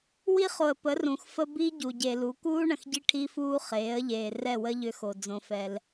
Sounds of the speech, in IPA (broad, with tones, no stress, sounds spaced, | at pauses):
w i˦ χ o˨ ə̯ p ə˨˦ r ũ˨ x f ə˦ b i˦ ɟ u˨ ɟ e˨ l u˨˦ k uː˦ ɳ ə̃˨ x ɟ i˦ ʈʰ i˦ f uː˦ χ eː˨˦ ə̯ ʎ eː˨ r ɛ˦˨ w ə˦ ʎ ʏ˦ x o˨ d͡z õ˦ f ɛ˦ l